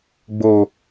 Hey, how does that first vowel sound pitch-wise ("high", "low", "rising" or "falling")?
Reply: high